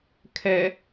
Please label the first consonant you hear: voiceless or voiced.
voiceless